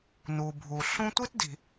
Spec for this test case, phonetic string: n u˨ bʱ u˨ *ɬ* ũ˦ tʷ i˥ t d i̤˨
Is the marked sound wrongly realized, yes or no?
no